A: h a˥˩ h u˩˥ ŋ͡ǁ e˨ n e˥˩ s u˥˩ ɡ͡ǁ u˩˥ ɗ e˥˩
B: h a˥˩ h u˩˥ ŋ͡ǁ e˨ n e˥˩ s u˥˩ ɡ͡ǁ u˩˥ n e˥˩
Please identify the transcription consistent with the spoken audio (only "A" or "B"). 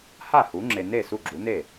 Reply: B